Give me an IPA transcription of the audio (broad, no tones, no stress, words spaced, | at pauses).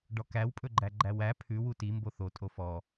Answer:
ɖɔkæwpʼɵɡ͡ǃæ ɡ͡ǃæwæ pʰʉ wuti mboθo tʼofɔ